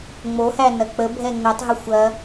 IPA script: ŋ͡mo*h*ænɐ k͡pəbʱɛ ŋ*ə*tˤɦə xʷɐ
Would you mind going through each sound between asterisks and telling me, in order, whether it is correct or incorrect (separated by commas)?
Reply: correct, correct